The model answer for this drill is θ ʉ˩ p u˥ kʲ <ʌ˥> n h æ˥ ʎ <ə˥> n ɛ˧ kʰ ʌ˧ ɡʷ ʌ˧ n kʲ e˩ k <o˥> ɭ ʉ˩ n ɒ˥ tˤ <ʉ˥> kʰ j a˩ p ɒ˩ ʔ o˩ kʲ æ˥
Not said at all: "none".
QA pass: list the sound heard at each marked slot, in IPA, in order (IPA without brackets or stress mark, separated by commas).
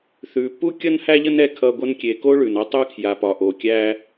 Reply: ʌ˥, ə˥, o˥, ʉ˥